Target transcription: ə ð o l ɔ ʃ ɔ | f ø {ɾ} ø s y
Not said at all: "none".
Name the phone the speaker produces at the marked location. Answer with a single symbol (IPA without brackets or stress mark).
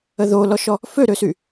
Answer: ɾ